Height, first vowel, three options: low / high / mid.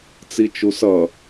high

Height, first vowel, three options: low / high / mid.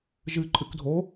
high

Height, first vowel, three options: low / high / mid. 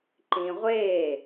high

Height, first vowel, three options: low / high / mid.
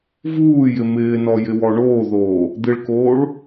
high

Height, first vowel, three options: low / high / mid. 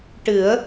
high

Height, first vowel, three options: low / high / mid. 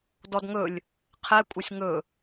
mid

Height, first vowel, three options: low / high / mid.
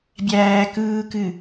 low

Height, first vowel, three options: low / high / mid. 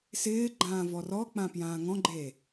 high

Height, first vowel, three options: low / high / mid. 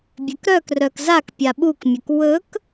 mid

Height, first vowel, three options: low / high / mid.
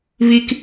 high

